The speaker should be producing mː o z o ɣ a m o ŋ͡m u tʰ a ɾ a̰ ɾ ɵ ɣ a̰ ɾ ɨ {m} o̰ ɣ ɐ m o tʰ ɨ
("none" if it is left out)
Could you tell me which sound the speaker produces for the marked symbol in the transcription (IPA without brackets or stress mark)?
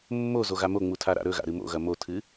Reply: m